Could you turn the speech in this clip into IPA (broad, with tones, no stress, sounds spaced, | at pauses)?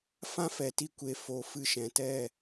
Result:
f ã˦ f ɛ˨ t i˧ kʷ e˨ f o˨ f ɨ˧ ʃ ɛ̃˨ t ɛ˦˨